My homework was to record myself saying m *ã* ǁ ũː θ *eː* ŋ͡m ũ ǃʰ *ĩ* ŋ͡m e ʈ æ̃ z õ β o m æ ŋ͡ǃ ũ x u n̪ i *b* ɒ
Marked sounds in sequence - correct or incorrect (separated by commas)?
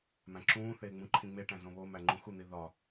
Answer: incorrect, correct, correct, incorrect